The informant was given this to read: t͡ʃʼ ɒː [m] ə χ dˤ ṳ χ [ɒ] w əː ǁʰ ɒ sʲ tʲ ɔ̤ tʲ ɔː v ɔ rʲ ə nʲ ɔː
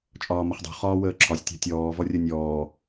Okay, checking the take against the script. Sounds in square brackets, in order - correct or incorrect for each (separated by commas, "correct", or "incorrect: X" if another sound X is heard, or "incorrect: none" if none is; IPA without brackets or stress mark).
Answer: correct, incorrect: ɒː